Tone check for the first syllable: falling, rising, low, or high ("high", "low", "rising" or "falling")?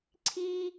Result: high